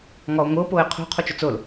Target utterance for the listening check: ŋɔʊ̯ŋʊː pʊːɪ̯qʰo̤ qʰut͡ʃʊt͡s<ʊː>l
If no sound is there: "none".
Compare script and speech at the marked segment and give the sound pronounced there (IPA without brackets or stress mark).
ʊː